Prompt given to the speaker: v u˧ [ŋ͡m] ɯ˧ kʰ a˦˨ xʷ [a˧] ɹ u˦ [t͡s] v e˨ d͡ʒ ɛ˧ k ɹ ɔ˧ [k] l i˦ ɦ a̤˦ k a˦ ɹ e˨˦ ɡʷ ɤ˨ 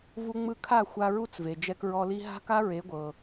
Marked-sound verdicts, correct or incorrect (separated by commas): correct, correct, correct, incorrect